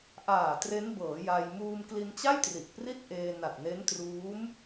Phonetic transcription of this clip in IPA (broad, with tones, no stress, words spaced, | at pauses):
ʔaː˨˩ tre˦˥nbɤː˩˦ ja˧j muː˧mkli˧nt͡ɕa˥˩j tri˨˩ʔpri˥˩t̚ʔeː˧ na˨˩t̚ne˦˥ntruː˦˥m